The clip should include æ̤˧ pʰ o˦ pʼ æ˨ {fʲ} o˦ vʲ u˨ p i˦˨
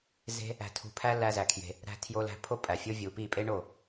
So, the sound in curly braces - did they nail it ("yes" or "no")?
yes